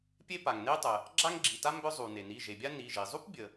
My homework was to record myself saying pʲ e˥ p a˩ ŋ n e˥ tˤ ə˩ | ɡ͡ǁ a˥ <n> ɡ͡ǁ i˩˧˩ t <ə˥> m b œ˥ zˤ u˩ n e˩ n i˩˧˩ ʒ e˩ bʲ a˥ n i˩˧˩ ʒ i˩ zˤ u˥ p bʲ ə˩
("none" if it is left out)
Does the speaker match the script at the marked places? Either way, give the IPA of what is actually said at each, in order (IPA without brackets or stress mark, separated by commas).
ŋ, a˥